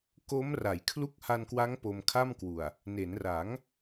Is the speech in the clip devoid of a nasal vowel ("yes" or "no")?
yes